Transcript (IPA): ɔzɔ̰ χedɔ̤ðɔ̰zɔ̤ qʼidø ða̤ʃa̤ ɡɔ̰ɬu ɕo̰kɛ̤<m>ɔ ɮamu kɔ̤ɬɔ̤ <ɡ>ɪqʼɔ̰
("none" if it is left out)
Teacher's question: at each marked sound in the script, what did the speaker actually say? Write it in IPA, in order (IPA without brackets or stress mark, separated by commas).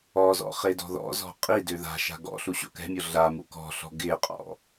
mʲ, ɡ